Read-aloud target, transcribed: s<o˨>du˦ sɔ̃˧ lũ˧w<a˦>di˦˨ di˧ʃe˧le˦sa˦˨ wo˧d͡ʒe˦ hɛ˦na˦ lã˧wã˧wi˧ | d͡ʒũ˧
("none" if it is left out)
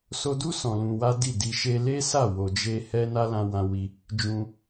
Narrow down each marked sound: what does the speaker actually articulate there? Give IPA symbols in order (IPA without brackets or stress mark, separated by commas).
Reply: o˧, a˦